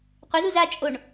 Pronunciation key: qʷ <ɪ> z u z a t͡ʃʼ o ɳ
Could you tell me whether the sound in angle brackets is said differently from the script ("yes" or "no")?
no